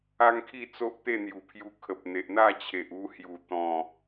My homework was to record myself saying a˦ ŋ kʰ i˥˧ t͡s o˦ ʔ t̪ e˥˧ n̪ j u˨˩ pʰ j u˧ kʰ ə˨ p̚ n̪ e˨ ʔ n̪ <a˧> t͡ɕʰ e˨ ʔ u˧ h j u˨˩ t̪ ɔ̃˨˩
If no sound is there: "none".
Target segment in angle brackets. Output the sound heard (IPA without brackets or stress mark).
a˥˧